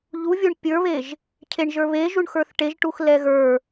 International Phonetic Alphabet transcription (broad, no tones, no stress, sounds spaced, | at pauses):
ʎ u vʲ o ɳ pʲ ə˞ β e ʒ | cʰ e ɳ ʒ ə˞ β e ʒ u ɳ x ə˞ θ ʈ e ʒ ʈ u x l ɛ ɣ ə˞